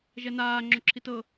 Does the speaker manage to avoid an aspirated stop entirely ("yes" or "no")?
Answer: no